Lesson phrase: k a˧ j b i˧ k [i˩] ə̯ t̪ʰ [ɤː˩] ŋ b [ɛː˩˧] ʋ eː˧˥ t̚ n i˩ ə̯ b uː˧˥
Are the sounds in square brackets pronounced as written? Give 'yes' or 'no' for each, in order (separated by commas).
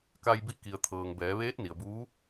yes, yes, yes